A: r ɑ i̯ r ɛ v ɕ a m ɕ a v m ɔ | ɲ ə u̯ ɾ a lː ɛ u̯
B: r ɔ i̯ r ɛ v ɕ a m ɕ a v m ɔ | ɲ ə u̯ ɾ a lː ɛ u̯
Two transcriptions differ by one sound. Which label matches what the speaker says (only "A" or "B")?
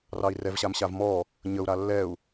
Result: A